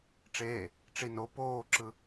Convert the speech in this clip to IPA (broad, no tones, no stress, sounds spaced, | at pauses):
ʈ͡ʂ eː | ʈ͡ʂ i n o p oː ǁ ɯ